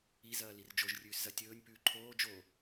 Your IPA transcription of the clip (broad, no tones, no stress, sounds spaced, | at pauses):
i z ɐː l i r d͡ʒ o ʒ rʲ ʉː s z ɐ tʲ ɵː nʲ p ʉː ǃʰ oː d͡ʒ o